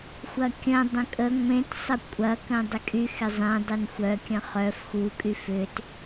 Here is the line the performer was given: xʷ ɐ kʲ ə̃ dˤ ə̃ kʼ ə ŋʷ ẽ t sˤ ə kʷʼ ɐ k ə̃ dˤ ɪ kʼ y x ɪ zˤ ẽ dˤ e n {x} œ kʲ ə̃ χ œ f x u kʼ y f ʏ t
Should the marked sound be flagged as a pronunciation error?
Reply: yes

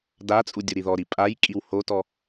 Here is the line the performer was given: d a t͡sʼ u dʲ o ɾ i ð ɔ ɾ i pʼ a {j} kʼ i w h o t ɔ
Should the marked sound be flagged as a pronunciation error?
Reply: no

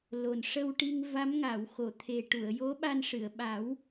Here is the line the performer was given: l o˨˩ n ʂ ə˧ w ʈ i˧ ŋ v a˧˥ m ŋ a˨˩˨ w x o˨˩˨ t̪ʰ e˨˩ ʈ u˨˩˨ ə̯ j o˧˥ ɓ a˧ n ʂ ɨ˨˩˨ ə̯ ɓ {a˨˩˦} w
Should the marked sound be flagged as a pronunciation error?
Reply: no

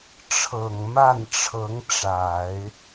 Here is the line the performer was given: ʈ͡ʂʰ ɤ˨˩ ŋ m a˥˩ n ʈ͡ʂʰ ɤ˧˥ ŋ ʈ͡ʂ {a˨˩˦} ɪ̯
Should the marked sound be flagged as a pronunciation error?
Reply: no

